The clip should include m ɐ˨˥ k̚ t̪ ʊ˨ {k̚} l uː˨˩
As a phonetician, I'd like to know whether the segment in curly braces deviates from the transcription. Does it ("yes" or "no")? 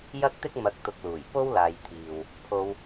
no